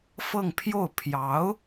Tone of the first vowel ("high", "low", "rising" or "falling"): falling